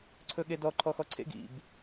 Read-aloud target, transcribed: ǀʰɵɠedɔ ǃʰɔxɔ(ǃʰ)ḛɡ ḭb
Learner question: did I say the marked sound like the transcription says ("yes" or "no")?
no